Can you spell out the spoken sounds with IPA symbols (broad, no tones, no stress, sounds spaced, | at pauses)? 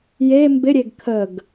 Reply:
j e m b ɪ ɾʲ e ɡ kʰ ə ɡ